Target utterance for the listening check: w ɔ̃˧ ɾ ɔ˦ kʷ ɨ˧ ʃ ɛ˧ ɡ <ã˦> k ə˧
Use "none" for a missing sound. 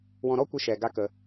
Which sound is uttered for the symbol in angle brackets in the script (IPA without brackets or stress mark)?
a˦